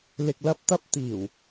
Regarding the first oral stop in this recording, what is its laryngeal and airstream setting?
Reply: plain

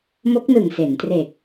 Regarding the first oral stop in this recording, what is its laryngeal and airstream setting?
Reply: plain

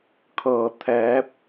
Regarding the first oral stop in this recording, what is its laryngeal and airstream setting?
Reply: aspirated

